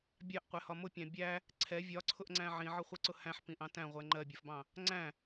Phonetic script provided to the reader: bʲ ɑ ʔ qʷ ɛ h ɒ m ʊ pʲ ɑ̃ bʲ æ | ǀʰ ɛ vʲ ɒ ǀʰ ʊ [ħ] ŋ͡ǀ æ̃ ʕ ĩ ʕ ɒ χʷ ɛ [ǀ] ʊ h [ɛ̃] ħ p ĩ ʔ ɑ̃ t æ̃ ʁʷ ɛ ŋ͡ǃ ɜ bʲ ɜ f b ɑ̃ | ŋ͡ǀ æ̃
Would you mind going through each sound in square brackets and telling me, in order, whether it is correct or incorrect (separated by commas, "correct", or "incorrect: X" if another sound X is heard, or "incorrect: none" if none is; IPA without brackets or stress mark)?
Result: incorrect: ʔ, correct, incorrect: æ̃